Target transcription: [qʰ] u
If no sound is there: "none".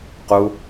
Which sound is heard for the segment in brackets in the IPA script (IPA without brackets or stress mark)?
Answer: q